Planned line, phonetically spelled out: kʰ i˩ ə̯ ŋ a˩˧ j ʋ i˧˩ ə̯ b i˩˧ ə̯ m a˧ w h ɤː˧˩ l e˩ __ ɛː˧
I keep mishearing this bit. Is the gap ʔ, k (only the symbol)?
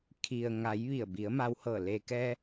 k